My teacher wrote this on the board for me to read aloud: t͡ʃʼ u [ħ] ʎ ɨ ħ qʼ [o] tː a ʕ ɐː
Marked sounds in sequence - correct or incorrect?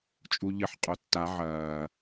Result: incorrect: none, correct

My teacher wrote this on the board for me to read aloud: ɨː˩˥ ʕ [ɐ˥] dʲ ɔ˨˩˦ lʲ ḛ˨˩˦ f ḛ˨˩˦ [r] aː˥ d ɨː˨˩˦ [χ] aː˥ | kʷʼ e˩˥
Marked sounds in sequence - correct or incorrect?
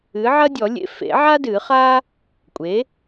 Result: correct, incorrect: ʕ, correct

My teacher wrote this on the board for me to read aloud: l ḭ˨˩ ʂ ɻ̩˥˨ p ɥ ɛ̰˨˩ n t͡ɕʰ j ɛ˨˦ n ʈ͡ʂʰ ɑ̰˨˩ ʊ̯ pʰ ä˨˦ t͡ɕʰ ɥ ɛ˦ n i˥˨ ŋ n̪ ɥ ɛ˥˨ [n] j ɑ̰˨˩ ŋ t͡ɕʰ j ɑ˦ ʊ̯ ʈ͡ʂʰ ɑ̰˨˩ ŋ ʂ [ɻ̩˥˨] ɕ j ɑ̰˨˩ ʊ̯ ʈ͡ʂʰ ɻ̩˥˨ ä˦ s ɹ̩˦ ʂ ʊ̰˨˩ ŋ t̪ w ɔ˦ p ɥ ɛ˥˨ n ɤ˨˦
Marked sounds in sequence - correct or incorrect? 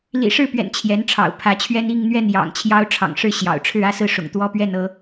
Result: correct, correct

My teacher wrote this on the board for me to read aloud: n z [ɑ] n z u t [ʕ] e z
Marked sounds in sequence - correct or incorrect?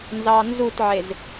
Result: correct, correct

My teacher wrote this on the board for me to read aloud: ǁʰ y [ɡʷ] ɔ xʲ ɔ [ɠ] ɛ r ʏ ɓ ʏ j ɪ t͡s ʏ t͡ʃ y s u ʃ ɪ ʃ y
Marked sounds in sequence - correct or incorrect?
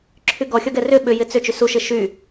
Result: incorrect: ɡ, incorrect: ɡ

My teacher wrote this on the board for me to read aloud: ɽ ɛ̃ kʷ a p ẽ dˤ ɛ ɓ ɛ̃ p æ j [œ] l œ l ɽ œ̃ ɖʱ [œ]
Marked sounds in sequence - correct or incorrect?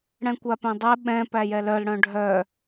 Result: incorrect: ɛ, correct

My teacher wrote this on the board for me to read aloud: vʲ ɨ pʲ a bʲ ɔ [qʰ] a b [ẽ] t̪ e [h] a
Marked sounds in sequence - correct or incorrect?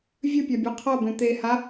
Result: correct, correct, correct

